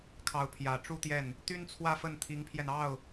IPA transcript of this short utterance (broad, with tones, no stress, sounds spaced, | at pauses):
kʰ ɑ˧˥ ʊ̯ pʰ j ä˨˩ ʈ͡ʂ u˥ t̪ j ɛ˥˩ n | t̪ y˥ n t͡sʰ w ä˥˧ f ə˥˩ n t̪ʰ i˧˥ ŋ pʰ j ɛ˧ n ɑ˥˩ ʊ̯